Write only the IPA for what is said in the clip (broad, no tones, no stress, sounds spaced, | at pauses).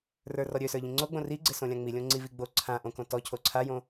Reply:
r ə˞ r ɔ ɾʲ ø s ə˞ ʎ ĩ ŋ͡ǀ o ɡ͡b õ r i ɡ͡ǀ ɪ s õ lʲ ã ŋ͡m i lʲ õ ŋ͡ǀ i v i ɡ͡b o ǀʰ ã ʔ õ k õ t ɔ cʰ o ǀʰ a j õ